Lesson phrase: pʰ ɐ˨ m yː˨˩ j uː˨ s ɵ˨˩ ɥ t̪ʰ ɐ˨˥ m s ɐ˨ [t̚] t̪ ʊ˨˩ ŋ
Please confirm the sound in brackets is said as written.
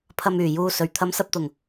no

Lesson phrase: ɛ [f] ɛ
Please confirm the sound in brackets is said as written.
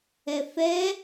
yes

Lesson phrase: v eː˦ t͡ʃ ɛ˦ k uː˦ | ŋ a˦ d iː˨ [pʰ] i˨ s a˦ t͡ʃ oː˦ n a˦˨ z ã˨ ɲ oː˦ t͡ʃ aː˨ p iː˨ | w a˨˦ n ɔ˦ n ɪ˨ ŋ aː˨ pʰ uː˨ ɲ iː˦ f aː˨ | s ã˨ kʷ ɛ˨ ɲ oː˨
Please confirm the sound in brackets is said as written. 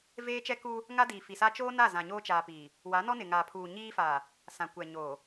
no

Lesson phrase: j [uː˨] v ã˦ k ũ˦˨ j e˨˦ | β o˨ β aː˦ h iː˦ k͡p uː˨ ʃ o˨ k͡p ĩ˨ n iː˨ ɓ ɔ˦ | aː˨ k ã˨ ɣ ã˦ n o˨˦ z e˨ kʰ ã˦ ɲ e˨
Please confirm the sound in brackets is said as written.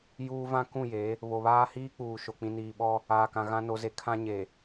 no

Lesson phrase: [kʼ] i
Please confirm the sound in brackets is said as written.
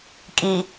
yes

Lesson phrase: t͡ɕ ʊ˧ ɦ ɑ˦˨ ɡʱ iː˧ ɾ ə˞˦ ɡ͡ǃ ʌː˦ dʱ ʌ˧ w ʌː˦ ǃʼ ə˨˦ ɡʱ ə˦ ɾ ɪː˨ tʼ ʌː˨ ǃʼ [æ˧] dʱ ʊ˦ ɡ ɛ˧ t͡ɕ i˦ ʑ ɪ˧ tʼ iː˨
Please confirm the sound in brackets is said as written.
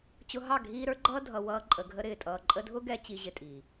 no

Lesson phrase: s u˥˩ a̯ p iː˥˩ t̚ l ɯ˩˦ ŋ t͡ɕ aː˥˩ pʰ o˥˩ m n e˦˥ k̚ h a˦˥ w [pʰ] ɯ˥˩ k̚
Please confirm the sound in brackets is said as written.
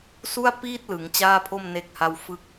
no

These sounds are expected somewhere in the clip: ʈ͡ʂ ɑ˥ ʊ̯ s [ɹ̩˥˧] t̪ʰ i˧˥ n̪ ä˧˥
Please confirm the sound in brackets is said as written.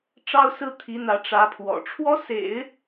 no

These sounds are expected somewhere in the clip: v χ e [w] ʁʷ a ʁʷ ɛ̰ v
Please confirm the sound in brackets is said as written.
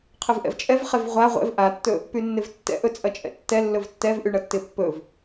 no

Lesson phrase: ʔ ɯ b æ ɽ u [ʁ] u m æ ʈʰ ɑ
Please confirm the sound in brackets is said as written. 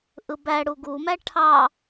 no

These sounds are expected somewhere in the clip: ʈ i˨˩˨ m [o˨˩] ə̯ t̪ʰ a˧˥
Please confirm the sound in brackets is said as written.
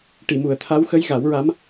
no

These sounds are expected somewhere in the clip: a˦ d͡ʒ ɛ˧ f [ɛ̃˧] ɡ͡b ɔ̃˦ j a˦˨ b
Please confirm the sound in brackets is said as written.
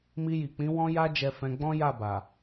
yes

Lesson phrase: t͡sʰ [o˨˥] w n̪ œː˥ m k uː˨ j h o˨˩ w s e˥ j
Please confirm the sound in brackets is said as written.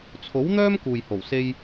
yes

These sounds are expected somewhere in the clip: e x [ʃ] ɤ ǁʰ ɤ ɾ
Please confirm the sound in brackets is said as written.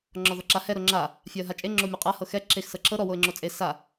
no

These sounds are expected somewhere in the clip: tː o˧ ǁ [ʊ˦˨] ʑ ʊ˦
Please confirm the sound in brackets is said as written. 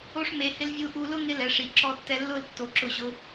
yes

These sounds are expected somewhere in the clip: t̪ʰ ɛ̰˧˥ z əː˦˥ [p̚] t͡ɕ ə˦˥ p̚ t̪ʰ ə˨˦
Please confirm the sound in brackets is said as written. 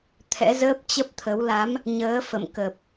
yes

